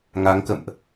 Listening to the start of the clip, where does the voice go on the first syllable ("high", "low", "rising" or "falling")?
rising